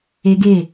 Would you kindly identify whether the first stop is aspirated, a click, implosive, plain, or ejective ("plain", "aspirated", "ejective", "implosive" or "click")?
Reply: plain